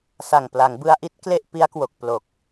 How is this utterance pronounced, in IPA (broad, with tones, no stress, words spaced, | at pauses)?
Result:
sa˨˩ŋpla˩˦ŋbɯ˧a̯ʔi˦˥t̚ kle˥˩ʔ pi˦˥a̯kwo˨˩k̚ plo˨˩k̚